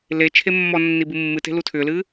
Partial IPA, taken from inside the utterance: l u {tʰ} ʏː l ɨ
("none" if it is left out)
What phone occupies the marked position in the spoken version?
tʰ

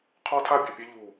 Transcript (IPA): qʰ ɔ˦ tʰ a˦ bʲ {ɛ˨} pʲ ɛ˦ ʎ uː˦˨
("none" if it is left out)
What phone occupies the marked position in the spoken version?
ø˨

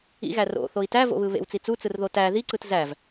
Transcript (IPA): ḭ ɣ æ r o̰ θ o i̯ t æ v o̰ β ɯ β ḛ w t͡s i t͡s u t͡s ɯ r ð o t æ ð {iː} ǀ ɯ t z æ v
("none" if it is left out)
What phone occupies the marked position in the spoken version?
i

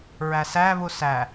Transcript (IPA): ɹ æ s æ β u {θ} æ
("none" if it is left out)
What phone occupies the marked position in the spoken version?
s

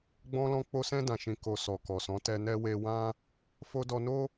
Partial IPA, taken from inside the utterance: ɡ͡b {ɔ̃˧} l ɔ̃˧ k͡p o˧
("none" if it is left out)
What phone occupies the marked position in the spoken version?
ɔ̃˧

